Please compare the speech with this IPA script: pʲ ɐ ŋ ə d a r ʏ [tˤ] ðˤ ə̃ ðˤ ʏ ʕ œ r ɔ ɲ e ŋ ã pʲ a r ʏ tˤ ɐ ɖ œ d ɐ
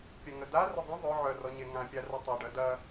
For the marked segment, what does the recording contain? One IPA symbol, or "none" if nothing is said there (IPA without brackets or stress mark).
none